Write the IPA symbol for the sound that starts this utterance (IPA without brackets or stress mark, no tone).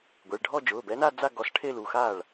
ɡʷ